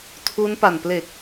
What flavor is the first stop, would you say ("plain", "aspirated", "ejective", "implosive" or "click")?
aspirated